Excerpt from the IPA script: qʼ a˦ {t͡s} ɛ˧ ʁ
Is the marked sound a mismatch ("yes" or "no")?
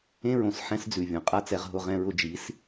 no